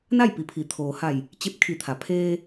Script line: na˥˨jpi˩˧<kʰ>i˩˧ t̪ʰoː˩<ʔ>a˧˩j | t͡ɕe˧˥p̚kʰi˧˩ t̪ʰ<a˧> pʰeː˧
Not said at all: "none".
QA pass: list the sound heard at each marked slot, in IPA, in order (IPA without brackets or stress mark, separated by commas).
pʰ, h, a˩